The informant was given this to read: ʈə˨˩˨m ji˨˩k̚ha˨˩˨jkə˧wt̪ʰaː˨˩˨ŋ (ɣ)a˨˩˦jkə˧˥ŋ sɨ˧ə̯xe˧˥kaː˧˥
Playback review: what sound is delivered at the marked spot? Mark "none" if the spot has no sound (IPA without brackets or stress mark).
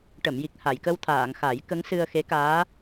x